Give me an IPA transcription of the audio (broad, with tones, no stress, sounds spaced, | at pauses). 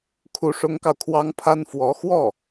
kʰ u˧˥ ʂ ʊ˧˥ ŋ k ɑ˧ ʊ̯ kʰ w ɑ˥ ŋ pʰ a˥ n f w ɔ˧˥ x w ɔ˥˩